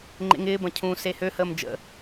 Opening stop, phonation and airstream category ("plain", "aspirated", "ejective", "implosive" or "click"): click